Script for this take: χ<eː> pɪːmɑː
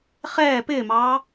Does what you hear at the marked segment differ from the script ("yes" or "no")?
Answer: yes